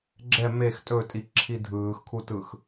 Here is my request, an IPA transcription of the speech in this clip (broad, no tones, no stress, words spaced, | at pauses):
ɡ͡ǁɛ mex tʼɵtʼiǁʰi dʱɯːxkʰutɯx